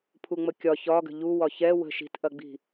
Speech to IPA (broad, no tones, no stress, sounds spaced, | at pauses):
pʰ u ŋ͡m ə kʲ ɒ ç ɒ ɡ ə̤ ʎ u w ɒ ç ɛ w ə̤ ʃ i̤ t ʔ ɐ ɡ͡b i̤